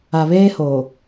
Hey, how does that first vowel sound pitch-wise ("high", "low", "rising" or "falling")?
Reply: low